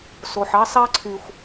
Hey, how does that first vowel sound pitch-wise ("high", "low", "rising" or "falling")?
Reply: low